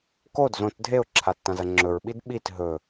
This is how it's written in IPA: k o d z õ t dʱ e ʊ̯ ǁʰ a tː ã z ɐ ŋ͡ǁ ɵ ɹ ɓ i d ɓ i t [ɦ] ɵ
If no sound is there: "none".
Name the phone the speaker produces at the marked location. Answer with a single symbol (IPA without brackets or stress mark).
ɦ